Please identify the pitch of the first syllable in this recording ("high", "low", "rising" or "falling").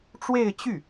falling